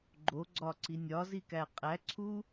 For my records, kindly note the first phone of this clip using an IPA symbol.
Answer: ɡ͡ǃ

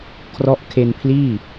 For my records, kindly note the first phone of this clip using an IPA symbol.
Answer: kʰ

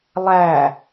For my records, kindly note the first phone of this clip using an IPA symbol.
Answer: lˠ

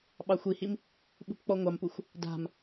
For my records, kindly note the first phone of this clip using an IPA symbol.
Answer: ɓ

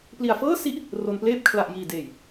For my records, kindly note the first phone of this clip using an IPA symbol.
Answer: p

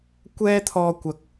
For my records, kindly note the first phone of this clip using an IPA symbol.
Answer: kʷ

